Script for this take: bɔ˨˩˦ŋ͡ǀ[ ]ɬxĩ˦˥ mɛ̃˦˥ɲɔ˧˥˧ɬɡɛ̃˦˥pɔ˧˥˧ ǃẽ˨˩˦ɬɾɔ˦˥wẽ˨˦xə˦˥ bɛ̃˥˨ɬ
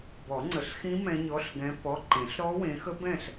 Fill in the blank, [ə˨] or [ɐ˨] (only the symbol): ə˨